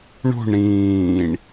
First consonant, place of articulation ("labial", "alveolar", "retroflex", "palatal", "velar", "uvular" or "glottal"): retroflex